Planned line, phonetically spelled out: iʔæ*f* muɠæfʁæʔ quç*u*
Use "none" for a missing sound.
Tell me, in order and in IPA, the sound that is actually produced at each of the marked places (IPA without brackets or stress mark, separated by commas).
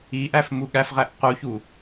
f, u